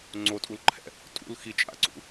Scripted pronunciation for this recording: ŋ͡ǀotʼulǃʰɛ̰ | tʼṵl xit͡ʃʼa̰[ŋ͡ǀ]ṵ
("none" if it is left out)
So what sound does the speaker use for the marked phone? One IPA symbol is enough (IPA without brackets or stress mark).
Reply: ǀ